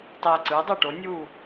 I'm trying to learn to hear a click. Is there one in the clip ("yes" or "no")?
yes